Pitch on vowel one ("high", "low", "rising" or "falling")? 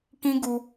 high